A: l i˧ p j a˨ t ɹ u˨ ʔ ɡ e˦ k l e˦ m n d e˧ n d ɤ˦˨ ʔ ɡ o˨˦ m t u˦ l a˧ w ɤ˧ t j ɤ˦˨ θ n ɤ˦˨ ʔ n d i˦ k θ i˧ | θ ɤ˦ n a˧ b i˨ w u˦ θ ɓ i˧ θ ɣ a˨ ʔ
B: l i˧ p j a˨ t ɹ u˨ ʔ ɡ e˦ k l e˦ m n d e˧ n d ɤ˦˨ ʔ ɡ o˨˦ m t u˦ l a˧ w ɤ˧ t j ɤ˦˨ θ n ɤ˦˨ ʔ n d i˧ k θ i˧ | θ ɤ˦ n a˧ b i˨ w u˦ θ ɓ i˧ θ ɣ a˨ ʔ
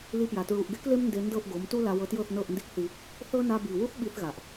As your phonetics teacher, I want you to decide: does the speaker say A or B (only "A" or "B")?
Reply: A